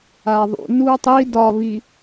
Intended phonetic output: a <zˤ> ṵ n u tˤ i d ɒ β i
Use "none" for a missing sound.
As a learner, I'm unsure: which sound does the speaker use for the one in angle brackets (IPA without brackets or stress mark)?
ðˤ